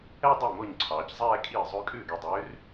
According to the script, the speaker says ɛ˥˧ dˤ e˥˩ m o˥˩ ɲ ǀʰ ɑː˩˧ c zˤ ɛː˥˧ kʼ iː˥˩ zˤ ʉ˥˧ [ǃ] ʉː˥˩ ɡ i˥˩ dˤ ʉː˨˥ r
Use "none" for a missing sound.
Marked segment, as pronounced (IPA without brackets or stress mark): kʼ